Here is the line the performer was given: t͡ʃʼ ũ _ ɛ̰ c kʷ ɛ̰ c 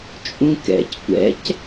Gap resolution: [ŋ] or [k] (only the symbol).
k